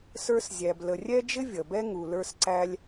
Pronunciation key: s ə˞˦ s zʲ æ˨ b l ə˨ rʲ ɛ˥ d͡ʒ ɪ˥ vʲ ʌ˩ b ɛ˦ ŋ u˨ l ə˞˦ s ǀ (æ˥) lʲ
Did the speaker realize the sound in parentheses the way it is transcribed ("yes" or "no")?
no